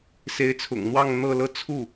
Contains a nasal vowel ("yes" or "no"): no